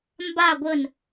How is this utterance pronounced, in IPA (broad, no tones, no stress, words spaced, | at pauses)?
mba ɡʷən